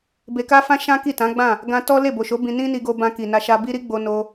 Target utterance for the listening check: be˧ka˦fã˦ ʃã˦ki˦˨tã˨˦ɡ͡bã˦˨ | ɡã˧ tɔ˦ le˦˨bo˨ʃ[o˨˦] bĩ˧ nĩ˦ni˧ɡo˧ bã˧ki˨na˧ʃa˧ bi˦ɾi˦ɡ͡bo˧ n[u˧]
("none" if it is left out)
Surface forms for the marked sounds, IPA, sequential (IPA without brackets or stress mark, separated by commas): o˨˦, o˧